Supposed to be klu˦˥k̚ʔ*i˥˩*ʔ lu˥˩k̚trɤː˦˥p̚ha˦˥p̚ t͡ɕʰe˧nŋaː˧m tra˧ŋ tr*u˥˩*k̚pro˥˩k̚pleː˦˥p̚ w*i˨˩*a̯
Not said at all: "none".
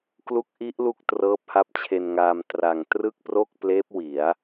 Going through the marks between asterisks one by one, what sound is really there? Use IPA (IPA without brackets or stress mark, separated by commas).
i˦˥, ɯ˥˩, i˩˦